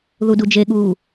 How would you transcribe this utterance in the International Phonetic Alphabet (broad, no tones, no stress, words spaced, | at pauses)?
ðudud͡ʒeɠuː